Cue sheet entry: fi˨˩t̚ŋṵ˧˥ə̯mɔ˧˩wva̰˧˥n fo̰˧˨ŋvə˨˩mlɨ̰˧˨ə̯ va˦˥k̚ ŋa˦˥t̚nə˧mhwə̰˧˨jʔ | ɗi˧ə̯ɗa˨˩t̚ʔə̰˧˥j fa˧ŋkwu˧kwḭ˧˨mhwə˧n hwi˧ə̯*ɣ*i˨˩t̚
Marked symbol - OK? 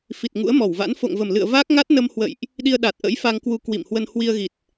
yes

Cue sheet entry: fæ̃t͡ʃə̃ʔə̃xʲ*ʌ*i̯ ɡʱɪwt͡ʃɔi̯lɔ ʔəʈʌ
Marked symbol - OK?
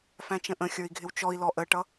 no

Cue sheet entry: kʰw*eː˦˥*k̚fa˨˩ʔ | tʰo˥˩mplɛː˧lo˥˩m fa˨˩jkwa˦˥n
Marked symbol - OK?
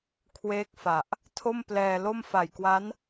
yes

